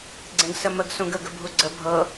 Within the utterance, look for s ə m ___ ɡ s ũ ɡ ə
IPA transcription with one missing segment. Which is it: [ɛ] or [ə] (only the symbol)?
ə